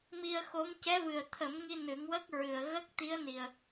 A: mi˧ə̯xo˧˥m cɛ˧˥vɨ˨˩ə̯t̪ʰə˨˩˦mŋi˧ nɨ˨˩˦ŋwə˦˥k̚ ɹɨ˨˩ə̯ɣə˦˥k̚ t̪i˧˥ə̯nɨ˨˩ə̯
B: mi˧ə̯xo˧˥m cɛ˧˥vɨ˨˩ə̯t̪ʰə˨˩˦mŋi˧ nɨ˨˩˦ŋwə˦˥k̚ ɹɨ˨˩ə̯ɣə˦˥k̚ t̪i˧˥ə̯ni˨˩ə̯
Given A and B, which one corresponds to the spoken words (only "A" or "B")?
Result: B